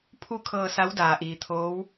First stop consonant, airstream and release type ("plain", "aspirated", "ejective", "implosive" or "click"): aspirated